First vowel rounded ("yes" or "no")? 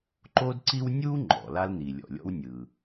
yes